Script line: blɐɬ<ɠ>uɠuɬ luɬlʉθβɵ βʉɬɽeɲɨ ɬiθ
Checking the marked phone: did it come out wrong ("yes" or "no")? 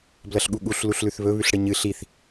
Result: no